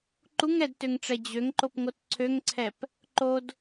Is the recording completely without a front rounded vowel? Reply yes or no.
no